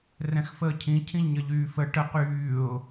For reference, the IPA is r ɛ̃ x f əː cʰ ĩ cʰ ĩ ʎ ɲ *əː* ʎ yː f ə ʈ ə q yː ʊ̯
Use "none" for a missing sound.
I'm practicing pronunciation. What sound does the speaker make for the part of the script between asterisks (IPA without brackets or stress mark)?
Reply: ə